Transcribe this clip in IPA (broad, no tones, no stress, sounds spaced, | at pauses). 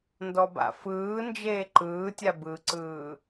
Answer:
n d ɔ b a̰ f ɯː n d͡ʒ eː ǃ ɯː tʲ a b ɯ ǀ ɯː